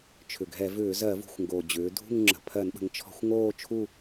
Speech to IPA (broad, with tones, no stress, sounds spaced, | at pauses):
t͡ʃʰ ʏ˨˩ ɡʱ ɛ˧˩˧ v ʏː˧˩˧ z ɜ˧˩˧ v ṳ˨˩ xʷ ŋ ɡ o˨˩ d͡ʑ ʏː˩˧ dʱ ṳ˦˨ ŋ ŋ͡ǁ ə̤˨˩ pʰ ɜ˧˩˧ n ɓ ə̤˩˧ ŋ t͡ʃʰ ɔ̤˧˩˧ xʷ ŋ oː˦˨ t͡ʃʰ u˦˨